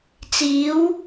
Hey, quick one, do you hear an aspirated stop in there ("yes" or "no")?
no